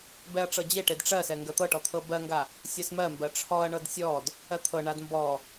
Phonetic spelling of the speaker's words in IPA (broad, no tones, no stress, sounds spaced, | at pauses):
b ɛ ɐ̯ ʈ͡ʂ ɤ d͡ʑ e ʈ e d ʈ͡ʂ ɜ s ɛ ŋ ɡ ɜ t̪ ɤ ʈ ɔ t̪ʰ ɤ b ɜ ŋ ɡ a | sʲ ɜ s m ɜ m b ɜ ʈ͡ʂʰ ɔ ɐ̯ ɳ ɤ d sʲ ɔ d | ɜ t̪ʰ ɤ ɳ a d m b ɔ